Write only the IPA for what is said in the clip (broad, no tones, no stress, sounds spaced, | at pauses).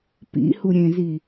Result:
p ḭ h u ɾʲ ẽ z i